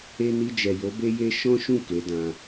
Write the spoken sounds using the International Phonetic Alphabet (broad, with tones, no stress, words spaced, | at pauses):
e˧ni˧d͡ʒɛ˨jo˨˦ be˦je˦ ʃɔ̃˦ʃũ˦˨ ke˨˦ dã˧